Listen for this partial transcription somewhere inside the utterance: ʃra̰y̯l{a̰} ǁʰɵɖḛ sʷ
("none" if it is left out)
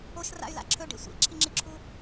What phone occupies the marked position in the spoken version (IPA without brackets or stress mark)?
a̰